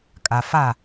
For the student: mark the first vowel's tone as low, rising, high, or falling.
low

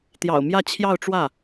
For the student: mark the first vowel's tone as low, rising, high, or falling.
low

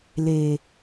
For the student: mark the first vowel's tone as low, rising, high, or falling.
low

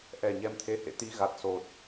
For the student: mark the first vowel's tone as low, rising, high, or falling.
low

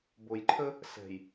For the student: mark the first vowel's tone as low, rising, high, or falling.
low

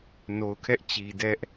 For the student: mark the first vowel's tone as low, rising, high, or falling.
low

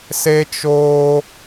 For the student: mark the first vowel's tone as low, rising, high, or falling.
high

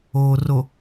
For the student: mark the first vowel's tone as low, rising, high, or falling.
low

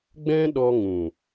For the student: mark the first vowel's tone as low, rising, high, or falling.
high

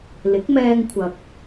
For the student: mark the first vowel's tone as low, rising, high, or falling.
rising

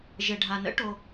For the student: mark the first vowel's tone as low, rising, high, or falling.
low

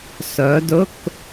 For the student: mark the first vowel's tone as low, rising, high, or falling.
rising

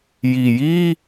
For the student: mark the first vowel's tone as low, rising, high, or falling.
low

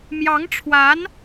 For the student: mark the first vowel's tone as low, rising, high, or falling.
rising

